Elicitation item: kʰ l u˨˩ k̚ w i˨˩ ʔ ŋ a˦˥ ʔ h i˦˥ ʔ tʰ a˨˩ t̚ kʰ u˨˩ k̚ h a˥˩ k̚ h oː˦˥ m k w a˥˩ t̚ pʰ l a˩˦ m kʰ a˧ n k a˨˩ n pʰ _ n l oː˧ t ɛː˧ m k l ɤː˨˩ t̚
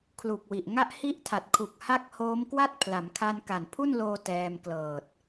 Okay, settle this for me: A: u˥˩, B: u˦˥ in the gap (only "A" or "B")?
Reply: A